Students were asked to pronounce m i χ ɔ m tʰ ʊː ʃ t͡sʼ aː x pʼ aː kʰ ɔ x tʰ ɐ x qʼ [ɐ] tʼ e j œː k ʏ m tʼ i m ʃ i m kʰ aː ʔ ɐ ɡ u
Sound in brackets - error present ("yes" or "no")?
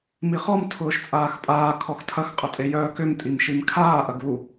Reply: no